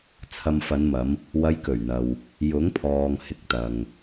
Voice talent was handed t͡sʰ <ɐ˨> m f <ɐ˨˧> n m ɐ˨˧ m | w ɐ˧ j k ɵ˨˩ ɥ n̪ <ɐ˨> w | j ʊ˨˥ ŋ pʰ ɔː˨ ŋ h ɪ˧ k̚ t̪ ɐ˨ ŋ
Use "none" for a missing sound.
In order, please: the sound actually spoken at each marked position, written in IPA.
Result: ɐ˨, ɐ˨˧, ɐ˨

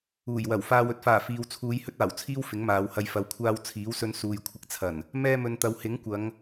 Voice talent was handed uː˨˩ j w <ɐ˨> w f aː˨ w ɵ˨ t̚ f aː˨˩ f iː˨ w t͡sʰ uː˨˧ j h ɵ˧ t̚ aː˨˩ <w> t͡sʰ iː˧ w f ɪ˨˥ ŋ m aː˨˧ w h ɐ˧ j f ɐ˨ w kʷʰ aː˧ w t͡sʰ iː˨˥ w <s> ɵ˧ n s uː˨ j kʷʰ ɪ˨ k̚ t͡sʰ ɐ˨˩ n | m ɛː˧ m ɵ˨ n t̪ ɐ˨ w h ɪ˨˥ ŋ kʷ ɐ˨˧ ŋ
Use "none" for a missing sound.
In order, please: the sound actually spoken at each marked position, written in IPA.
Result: ɐ˨˩, w, s

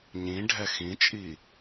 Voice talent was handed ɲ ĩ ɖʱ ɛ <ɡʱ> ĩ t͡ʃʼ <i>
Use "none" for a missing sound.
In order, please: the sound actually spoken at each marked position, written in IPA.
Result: x, i

